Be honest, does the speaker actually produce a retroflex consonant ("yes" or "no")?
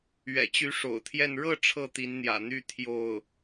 yes